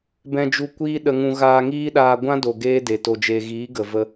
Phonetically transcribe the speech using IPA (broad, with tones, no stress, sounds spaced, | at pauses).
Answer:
b ɛ̃˧ d͡ʒ u˧ kʷ iː˦ ɗ ə˧ ŋ ũ˧ ɣ aː˧ ŋ iː˦ ɗ aː˧ ɡʷ ã˦ d o˨ ɡ eː˦ d e˨ t o˨ d͡ʒ e˨ ɣ iː˨˦ ɡ ə˨ v ə˧